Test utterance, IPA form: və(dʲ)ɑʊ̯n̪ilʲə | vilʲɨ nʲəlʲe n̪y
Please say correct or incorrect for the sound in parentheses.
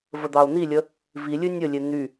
incorrect